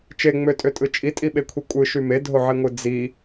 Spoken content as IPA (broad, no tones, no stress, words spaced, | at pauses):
t͡ʃeŋ͡møtʼøtʼɯ t͡ʃʼitʼiɓekʷʰi kʷʼɯʃy medʱoʕiŋʷɯ d͡zi